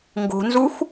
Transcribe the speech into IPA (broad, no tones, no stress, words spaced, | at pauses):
ŋɡo̤nzux